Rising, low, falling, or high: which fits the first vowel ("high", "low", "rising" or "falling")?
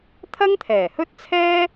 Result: high